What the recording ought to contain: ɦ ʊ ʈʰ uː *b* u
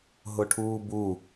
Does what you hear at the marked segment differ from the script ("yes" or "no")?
no